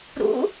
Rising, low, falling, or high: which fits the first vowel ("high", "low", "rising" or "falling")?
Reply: rising